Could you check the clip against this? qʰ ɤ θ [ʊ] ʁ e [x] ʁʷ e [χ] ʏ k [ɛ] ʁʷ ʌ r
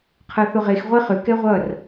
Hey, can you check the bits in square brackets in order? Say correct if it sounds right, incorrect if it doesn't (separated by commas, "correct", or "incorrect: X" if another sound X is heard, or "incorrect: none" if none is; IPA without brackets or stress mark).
correct, correct, correct, correct